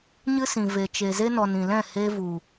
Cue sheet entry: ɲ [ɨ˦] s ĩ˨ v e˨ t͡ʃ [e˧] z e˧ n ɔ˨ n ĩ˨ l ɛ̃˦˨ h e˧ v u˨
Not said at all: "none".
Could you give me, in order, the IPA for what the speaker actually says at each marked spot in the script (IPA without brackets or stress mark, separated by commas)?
ɨ˦, e˨